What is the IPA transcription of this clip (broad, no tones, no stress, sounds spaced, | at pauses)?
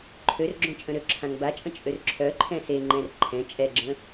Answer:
ǃʰ ø r ɡ͡ǁ õ t͡ʃʼ ə̃ ɾ ø ǁʰ ã ŋ b a t͡ʃʼ ə̃ t͡ʃʼ ø r ǁʰ œ ǃʰ ɛ̃ s e ŋ͡ǃ ɛ̃ r ǃʰ ɛ̃ t͡ʃʼ ɛ ɡ͡ǁ ə̃